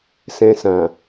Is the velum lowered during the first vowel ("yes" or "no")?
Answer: yes